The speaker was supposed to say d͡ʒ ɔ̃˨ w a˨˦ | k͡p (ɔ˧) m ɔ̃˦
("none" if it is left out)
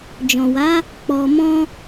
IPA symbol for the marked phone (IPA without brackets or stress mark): ɔ˧